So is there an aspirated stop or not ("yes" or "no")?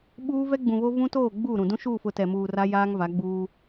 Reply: no